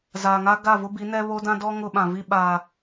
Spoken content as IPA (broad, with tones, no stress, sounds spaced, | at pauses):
z aː˨ ŋ a˦ ɡ a˦˨ v ʊ˦ b i˨˦ n ɛ˦ β o˦ d ã˦ d ɔ˦ ŋ ʊ˦ ɓ ã˨ v i˦ ɓ aː˨